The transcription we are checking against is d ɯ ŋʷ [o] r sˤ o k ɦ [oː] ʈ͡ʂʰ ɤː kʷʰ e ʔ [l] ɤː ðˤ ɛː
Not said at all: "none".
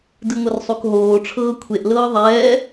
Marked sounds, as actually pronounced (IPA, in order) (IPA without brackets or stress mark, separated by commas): ɤ, oː, l